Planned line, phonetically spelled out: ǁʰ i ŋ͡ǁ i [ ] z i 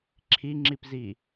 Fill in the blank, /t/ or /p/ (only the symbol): p